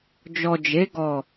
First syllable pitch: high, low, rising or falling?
low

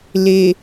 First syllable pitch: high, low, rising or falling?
low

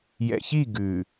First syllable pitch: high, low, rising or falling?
low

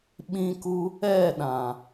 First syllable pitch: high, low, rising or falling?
high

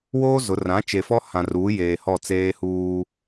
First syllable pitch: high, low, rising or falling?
high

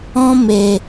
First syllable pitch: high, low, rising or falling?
high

